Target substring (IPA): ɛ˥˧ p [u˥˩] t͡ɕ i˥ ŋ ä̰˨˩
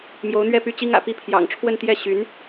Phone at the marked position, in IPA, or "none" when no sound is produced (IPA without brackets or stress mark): y˥˩